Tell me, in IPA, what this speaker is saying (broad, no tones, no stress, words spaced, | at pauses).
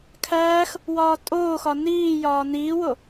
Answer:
kʰæːx | wɒːtʼoːxɒ niːjɒː niːwo